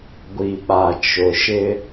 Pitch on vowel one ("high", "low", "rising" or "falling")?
low